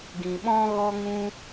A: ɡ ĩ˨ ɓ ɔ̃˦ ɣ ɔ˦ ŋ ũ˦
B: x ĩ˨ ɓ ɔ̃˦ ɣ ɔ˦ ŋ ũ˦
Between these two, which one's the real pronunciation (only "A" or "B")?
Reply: A